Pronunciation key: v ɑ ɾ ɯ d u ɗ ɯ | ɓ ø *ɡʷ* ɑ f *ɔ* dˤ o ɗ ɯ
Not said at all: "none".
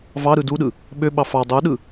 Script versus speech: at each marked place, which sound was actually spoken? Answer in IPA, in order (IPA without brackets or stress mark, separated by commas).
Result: ɓ, ɑ